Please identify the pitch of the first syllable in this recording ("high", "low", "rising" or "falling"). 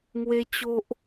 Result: high